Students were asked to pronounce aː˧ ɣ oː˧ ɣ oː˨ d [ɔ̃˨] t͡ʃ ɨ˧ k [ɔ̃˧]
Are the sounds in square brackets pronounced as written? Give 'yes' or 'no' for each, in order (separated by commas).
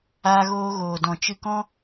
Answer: yes, no